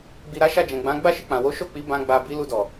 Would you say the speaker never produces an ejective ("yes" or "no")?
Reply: yes